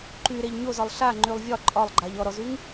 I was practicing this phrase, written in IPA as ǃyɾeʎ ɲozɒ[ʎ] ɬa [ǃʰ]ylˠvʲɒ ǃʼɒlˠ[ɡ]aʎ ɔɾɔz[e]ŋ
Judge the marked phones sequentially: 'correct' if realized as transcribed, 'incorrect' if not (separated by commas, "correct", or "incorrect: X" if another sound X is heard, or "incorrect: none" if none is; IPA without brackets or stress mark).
incorrect: lˠ, incorrect: ŋ͡ǃ, incorrect: ɡ͡ǃ, incorrect: y